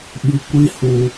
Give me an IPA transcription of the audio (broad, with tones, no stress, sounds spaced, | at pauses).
ɓ i˧ kʷ i˦ h u˧